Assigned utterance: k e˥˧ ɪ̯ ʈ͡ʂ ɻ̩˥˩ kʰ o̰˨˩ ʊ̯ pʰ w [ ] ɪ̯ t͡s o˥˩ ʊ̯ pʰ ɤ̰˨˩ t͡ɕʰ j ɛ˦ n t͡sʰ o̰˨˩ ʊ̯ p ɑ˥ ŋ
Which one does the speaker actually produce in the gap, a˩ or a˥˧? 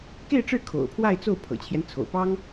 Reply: a˥˧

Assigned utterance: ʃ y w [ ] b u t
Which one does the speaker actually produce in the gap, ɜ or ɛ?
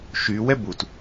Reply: ɛ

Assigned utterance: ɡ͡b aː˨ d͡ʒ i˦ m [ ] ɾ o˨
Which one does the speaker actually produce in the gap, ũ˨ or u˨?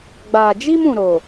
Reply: ũ˨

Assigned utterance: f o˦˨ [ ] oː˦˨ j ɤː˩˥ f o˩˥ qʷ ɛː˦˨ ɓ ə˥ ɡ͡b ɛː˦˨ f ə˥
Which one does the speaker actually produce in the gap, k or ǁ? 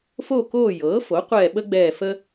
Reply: k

